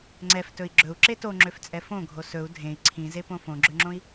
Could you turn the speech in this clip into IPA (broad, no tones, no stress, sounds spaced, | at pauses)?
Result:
ŋ͡ǀ ɛ f t ɵ i̯ ɡ͡ǁ ɵ u̯ ǁ e t o ŋ͡ǁ ø f t͡sʼ ɛ f õ ɡʱ o s ɵ u̯ dʱ ẽ i̯ ǀʰ ĩ z e p õ f õ ɡ͡ǁ ø ŋ͡ǁ õ i̯